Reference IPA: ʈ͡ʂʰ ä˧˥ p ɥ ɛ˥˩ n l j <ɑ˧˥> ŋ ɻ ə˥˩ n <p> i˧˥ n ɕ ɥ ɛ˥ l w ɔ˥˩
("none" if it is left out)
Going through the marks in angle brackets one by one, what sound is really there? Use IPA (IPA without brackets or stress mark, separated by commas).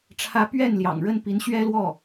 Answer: ɑ̰˨˩, p